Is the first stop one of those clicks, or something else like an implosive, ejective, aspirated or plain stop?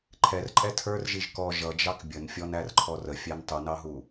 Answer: click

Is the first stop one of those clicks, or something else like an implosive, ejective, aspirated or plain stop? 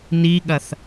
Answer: implosive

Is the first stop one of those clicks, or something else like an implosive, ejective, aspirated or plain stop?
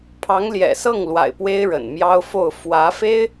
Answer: aspirated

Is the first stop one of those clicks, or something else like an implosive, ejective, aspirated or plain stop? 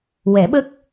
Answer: implosive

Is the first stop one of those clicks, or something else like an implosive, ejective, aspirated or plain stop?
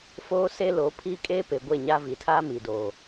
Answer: aspirated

